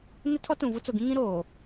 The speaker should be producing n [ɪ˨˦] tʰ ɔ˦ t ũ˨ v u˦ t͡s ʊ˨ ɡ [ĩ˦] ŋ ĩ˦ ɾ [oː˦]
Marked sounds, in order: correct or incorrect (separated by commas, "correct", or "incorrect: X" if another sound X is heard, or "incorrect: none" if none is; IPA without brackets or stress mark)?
incorrect: ɪ˦, correct, incorrect: oː˨